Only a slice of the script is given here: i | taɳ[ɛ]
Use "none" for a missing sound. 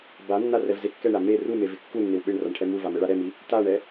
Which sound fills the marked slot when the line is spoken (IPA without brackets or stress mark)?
ɛ